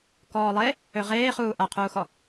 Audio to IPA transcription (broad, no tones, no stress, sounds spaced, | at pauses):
k ɔː lˠ e | ø ʁ eː χ uː ʔ a qʰ uː x ɔ